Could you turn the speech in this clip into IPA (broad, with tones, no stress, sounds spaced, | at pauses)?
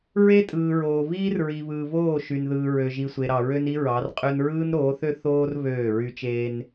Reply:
ɹ e˦ tʼ ɯː˨ ɹ oː˨ β iː˦ r ɹ i˨ β ɯː˨ β oː˦˨ ʃ y˨ n ð ɯː˨ ɹ ø˨ ʒ i˨ sʷ e˨ ɾ ɑ˨ ɹ ø˦ n i˦ ɹ ɑ˨˦ r qʼ ø˦ n ɹ ɯː˦ n ɾ oː˨˦ θ ø˦ θ oː˦ r β øː˦˨ ɹ y˦ t͡ʃ eː˦ n